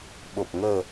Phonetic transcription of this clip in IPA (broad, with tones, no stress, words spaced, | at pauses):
ɓo˨˩p̚ ŋəː˨˩